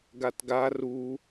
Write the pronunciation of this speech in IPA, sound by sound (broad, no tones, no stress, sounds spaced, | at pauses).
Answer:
ɡ a t ɡ a r u